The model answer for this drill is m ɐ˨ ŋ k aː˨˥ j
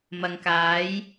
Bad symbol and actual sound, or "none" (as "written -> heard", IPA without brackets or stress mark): none